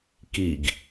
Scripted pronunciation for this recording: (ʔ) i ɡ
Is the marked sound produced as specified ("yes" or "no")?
no